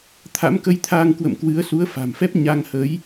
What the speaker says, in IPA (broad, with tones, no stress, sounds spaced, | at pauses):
t̪ʰ a̰˧˥ m k ə˧ j t̪ʰ aː˧ ŋ k w ə̰˧˨ m k w ɨ˨˦ ə̯ s u˨˦ ə̯ f a̤˨˩ m f ɛ˦˥ p̚ ɲ a˧ ŋ h ə˨˦ j